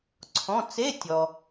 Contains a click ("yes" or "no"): yes